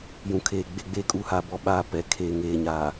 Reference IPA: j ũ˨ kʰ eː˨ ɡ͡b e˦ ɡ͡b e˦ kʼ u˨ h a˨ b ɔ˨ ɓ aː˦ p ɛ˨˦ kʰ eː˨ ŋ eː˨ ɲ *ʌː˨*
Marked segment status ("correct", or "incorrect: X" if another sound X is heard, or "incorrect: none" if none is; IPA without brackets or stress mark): incorrect: aː˨